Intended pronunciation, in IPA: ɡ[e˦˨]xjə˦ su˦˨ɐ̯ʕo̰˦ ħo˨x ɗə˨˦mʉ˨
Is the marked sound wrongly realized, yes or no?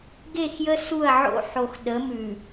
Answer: no